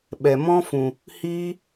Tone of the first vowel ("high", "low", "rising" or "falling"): low